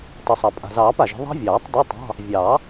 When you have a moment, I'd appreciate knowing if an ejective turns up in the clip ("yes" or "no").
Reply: yes